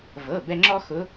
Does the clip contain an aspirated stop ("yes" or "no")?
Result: no